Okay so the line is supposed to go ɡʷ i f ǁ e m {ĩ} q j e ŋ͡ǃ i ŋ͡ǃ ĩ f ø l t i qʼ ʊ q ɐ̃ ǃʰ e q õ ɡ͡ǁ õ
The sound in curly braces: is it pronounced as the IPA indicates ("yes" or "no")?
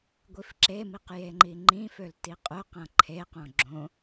no